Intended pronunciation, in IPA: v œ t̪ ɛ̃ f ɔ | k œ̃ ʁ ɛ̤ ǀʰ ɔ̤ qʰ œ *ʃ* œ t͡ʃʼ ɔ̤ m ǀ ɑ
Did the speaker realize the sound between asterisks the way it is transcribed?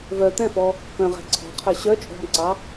no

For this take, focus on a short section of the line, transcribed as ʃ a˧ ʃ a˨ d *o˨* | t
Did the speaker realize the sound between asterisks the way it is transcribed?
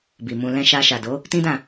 no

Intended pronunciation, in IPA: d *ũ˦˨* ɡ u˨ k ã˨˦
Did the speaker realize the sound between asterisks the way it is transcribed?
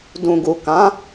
no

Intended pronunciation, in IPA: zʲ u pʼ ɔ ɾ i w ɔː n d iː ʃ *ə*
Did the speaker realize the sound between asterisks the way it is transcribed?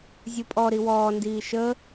yes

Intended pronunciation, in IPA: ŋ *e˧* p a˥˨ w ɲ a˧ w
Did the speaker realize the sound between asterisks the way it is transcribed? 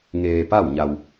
no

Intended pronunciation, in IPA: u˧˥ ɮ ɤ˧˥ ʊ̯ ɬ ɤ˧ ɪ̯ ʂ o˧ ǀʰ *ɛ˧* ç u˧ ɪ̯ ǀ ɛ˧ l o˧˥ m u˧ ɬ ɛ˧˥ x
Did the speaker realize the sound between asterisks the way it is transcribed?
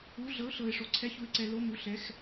no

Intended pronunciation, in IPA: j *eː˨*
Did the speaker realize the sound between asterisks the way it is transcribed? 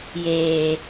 yes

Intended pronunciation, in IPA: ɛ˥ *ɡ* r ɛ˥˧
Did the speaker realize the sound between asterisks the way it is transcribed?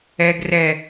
yes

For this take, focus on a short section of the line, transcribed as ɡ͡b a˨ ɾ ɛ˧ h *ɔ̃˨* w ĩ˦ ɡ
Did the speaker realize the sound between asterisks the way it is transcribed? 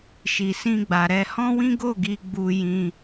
no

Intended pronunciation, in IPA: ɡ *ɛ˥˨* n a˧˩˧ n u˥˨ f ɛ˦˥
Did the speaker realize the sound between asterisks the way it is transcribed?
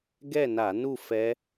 yes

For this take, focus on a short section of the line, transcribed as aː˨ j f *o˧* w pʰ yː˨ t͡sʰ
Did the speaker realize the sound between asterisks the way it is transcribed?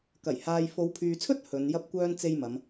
no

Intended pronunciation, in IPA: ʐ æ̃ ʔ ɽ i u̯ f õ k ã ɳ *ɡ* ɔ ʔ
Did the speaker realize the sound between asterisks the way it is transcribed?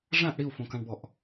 no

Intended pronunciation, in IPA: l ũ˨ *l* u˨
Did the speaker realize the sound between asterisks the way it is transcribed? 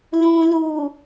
yes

